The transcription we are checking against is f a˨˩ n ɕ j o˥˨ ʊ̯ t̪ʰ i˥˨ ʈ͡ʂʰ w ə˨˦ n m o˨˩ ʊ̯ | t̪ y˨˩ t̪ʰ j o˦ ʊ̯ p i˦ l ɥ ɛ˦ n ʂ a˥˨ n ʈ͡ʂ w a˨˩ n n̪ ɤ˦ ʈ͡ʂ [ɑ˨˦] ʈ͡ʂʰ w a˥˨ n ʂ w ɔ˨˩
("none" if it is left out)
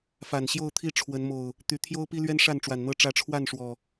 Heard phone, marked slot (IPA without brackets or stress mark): ä˨˦